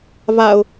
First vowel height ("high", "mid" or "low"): low